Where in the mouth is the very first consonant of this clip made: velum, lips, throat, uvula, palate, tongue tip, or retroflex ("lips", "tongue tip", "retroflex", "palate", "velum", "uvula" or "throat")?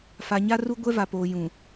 lips